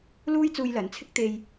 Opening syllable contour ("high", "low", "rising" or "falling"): high